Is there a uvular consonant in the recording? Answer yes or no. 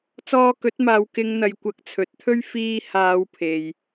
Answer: no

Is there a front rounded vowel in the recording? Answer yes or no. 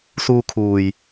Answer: no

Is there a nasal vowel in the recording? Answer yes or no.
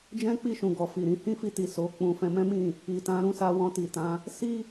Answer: yes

